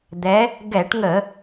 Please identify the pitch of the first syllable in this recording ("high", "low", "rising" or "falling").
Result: rising